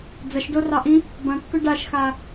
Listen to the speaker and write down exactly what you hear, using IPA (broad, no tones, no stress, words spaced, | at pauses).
d͡zɐʃdorɑʔĩ | bɐ̃kːʏ ɖaʃxa